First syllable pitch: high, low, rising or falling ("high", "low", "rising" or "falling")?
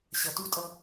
low